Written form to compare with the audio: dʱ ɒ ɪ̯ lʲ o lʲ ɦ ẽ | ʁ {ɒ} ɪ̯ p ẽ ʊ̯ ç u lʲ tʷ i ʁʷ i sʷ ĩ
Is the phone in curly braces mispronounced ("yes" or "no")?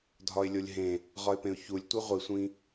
no